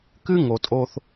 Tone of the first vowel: high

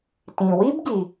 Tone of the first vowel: low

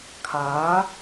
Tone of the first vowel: rising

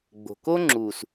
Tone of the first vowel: low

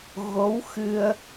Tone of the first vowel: rising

